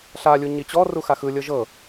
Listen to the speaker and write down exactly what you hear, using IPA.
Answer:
ɬ a lʲ u ɲ i t͡ɕ ɔ r u x a x ɯ lʲ ɤ ʒ ɤ

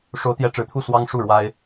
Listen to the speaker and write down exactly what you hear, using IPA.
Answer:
ʂ o˨˦ ʊ̯ t̪ j ɛ˨˦ ʈ͡ʂ ɻ̩˨˦ t̪ʰ u˥˨ s w ɑ˦ ŋ ʂ u˥˨ ɻ w a˦ ɪ̯

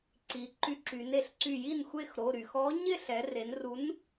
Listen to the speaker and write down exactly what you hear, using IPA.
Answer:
ǀ i˩˧ ǃ y˧˩ ǁ y˩˧ n e˩˧ ɬ ǀ y˧˩ j i˥˩ n xʷ e˥˩ x ɾ o˩˧˩ ɾ y˩ x ɔ˨˥ ɲ ɪ˥˩ ɬ ɛ˩˧ r e˩˧ n r u˨˥ n

